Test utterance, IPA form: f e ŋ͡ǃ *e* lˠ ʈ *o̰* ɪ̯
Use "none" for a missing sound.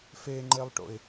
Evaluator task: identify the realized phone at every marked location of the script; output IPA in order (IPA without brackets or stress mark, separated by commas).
e, o̰